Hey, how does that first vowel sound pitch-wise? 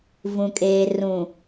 low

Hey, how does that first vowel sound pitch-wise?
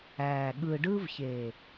low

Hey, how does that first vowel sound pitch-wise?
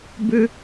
high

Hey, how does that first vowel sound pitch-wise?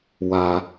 low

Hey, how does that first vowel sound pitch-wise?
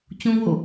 high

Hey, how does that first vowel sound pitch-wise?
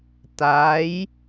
rising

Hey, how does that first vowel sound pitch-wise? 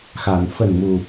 low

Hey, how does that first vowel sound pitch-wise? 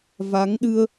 rising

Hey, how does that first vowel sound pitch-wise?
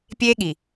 high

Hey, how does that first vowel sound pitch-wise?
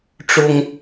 high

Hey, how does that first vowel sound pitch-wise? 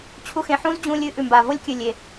high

